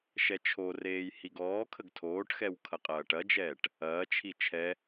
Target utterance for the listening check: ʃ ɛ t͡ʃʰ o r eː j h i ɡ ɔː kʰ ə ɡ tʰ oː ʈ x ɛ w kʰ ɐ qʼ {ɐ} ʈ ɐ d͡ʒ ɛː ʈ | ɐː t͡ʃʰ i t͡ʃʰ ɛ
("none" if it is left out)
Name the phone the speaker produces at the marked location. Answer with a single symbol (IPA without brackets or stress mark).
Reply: ɐː